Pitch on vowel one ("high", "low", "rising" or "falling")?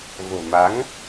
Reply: low